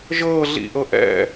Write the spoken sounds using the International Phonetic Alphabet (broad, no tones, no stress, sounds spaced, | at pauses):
ʒ ɤː ɮ ḭ ʔ ɤ ʔ ɛ̰